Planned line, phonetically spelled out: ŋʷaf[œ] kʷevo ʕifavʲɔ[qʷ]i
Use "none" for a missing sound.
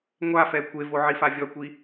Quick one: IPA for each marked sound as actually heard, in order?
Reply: ɛ, kʷ

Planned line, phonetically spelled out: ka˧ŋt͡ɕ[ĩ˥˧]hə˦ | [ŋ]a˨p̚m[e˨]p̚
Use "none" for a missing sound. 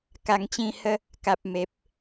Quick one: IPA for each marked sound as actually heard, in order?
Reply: ĩ˥˧, k, e˨

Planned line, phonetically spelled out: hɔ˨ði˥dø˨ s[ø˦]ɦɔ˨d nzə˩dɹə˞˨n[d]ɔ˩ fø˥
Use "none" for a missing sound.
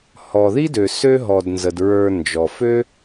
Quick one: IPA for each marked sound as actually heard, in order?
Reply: ø˦, d͡ʒ

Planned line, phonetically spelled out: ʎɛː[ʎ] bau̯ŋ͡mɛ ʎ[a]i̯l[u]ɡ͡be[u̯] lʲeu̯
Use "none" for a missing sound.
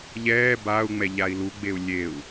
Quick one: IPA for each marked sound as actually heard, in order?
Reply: none, a, u, u̯

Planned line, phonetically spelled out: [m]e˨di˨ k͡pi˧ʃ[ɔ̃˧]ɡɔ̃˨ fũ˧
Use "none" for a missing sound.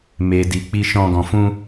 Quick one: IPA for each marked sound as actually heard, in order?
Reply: m, ɔ̃˧

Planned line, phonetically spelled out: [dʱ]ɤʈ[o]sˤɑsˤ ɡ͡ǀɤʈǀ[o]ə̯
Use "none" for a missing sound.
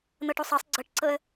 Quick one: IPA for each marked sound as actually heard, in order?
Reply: n̪, o, ɤ

